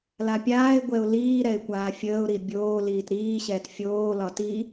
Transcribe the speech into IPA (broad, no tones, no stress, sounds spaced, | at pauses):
l a pʲ aː ɪ̯ ɡʷ ɛ ʊ̯ l iː ɾ ɛ ɪ̯ kʷ aː fʲ əː ʊ̯ ɾ i bʲ oː l iː t ɾ iː ɕ ɛː t fʲ oː l ɒ t i